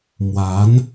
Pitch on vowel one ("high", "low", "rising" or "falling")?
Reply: rising